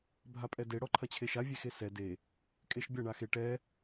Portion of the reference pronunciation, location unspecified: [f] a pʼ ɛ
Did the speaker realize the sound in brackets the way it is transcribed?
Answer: no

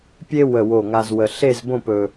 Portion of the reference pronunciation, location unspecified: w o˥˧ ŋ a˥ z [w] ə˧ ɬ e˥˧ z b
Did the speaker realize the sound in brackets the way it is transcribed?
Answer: yes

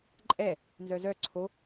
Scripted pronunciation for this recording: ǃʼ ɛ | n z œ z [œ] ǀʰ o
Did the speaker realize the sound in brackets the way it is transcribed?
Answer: yes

